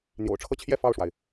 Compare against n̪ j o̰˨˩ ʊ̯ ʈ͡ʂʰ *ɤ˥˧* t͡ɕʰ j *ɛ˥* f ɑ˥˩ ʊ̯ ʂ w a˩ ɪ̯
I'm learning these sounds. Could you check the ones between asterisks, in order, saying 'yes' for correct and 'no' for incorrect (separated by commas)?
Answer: yes, no